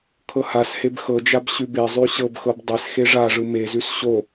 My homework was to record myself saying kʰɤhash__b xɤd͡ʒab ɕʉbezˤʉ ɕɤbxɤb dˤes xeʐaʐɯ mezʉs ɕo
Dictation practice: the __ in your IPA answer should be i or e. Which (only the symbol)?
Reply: e